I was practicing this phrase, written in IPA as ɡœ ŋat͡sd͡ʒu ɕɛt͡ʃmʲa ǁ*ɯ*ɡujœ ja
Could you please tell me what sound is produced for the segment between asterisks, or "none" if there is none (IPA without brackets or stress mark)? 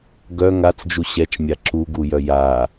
u